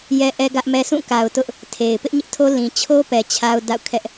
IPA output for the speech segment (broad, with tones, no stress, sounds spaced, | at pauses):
j ɛ˦ ʔ ɛ˦ ɡ ä˦ ʔ m ɛ˦ s ũ˦˨ k a˨ ʊ̯ t ʊ˦ ʔ | tʰ e˨ ɪ̯ p ɪ˦ ʔ ɲ ɪ˦ ʔ tʰ o˦ l ĩ˨ t͡ɕʰ o˦ p ɛ˨ t͡ɕʰ a˦ ʊ̯ d a̰˦˨ ʊ̯ kʰ ɛ˦ ʔ